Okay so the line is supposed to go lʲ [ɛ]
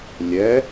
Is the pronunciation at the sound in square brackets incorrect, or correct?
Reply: correct